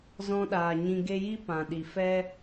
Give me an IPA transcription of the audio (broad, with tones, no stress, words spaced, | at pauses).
zɔ̃˧ɗaː˨ ɲĩ˧ ɡe˧ji˦ pã˨ɗi˨ fɛ˦